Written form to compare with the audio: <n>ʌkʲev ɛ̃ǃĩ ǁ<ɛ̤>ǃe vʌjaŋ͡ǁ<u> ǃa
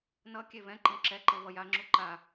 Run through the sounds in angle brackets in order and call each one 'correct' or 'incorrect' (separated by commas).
correct, incorrect, correct